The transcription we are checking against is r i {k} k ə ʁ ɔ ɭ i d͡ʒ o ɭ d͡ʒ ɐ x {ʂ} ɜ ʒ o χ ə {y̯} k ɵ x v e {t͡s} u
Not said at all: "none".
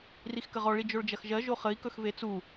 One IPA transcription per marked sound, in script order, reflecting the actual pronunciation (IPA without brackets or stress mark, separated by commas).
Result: x, ʒ, i̯, t͡s